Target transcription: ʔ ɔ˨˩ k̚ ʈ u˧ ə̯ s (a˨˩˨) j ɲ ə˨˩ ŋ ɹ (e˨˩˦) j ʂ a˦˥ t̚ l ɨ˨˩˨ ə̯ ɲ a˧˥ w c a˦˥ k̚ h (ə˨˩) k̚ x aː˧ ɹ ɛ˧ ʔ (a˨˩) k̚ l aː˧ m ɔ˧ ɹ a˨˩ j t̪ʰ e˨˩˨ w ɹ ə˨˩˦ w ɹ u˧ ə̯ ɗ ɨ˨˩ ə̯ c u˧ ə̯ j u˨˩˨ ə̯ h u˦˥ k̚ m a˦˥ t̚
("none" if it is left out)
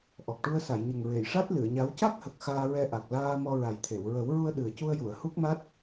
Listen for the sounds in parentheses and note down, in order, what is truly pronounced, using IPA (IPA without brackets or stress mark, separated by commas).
a˨˩˨, e˨˩˨, ə˨˩, a˨˩